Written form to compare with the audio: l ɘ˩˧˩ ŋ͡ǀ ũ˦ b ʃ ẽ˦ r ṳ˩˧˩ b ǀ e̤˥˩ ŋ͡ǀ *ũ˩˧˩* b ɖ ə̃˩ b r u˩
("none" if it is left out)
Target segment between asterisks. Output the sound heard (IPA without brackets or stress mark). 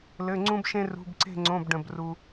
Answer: õ˩˧˩